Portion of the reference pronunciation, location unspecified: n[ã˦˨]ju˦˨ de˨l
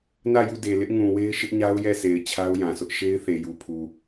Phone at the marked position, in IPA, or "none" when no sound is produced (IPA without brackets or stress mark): ä˦˨